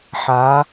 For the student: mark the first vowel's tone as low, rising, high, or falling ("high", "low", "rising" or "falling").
rising